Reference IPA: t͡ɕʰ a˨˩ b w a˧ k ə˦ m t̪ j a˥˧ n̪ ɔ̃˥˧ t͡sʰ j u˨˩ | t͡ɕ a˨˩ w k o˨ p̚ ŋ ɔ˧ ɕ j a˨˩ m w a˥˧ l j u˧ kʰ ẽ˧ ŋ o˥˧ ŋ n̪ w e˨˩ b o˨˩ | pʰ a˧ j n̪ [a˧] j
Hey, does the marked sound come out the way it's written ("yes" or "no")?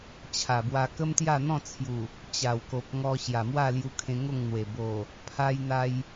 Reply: yes